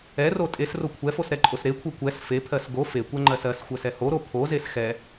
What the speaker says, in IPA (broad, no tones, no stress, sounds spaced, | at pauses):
ɛ r o tʼ e s r o kʷʰ ɛ f o s ɾ ɛ ǃʼ o s ɾ e kʷʰ ɜ kʷ ɛ s f e pʰ ɜ s ɡ o f e kʷ ɛ ŋ͡ǃ ɜ s ɜ s xʷ ɜ s ɛ h o ɾ o pʰ o z e s x ɛ